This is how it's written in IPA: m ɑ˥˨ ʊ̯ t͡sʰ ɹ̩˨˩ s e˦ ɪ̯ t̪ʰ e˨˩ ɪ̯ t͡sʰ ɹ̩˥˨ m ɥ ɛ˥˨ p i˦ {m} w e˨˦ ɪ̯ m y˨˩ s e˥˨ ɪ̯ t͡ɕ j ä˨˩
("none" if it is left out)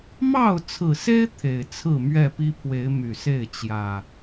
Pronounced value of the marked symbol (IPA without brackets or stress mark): pʰ